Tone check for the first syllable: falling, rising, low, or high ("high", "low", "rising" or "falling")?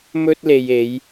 high